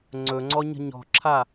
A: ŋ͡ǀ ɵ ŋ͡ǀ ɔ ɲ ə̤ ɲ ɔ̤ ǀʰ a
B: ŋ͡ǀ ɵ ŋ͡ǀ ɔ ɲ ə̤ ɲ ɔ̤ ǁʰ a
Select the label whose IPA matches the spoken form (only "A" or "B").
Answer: B